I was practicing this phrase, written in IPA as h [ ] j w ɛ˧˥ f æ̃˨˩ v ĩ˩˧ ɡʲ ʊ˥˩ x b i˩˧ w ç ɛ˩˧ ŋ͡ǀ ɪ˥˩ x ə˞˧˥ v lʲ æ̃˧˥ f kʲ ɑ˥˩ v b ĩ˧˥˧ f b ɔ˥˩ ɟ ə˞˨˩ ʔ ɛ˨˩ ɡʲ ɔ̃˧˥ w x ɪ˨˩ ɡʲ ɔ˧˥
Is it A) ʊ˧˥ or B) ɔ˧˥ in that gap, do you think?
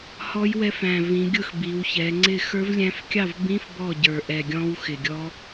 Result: B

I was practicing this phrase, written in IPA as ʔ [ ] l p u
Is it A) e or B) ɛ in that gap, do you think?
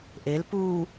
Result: A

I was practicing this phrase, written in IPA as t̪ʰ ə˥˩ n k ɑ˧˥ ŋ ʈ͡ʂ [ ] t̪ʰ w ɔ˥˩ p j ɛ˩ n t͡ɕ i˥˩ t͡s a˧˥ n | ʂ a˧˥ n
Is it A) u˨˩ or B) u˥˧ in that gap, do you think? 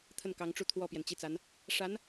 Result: B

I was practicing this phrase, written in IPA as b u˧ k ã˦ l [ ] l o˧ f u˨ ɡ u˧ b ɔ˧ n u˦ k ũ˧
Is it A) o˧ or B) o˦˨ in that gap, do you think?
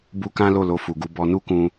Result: B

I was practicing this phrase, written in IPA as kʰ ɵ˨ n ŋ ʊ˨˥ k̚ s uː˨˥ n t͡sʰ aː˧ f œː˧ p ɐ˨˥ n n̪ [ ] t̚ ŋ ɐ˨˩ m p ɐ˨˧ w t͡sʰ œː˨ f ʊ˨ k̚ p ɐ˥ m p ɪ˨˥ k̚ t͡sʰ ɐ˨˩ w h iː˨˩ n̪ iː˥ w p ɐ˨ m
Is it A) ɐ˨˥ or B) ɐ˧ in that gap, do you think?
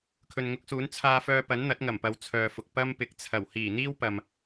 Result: A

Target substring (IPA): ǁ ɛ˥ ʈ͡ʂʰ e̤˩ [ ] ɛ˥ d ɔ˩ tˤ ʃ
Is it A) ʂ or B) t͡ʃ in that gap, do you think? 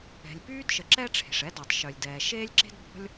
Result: A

